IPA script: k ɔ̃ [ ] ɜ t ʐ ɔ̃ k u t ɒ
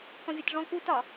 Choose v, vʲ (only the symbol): vʲ